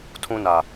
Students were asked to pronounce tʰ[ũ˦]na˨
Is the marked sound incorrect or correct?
correct